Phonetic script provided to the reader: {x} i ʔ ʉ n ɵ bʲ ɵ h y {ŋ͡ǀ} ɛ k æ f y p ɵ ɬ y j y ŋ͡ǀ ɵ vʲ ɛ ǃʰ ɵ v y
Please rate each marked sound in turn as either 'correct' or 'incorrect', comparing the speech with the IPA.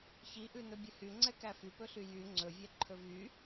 incorrect: ç, correct

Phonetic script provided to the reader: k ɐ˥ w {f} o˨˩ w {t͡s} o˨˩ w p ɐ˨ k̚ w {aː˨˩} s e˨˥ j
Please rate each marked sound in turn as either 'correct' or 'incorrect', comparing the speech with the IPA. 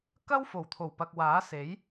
correct, incorrect: t̪ʰ, incorrect: aː˨˥

